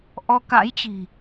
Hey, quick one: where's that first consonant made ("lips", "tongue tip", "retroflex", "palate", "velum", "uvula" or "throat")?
throat